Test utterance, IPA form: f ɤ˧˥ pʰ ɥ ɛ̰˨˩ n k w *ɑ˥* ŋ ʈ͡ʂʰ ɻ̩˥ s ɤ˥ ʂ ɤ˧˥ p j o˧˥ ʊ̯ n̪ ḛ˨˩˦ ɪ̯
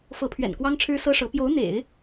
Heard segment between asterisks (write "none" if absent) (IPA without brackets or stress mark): ɑ˥